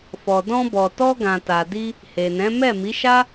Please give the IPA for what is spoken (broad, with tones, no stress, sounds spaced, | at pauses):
f ɔ˨ d ɔ̃˧ b ɔ˨ t ɔ˧ ɡ ã˨ t a˨ d i˧ | h e˨ n ɛ̃˨˦ m ɛ˦˨ m i˨˦ ʃ a˦